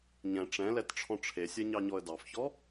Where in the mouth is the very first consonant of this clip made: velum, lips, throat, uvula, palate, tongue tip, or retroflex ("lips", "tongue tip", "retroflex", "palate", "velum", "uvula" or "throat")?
palate